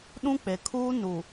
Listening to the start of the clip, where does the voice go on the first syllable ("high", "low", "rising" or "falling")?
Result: high